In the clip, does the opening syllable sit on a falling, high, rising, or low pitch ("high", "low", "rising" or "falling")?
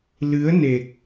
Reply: rising